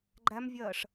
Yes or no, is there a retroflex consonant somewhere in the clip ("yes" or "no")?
yes